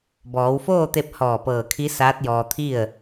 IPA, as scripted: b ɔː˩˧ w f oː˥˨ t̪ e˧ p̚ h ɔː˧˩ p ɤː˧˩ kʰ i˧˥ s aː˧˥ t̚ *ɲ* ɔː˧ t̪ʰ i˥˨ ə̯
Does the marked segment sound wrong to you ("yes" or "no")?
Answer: yes